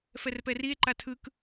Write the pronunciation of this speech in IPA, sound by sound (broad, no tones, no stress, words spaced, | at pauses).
fɛrpɛrie̯ ǃatʰɯk